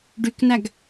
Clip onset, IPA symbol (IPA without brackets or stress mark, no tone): ɖ